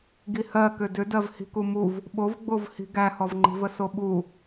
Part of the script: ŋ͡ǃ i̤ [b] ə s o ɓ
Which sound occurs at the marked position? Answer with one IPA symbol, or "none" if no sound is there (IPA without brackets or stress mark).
v